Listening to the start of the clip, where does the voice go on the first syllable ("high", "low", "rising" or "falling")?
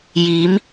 rising